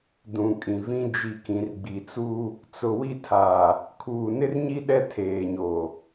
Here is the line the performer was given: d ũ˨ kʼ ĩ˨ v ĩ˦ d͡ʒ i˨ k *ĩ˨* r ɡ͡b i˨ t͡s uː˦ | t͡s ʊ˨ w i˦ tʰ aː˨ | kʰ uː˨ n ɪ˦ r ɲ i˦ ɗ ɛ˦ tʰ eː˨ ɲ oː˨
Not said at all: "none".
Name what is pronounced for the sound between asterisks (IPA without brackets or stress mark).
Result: ĩ˨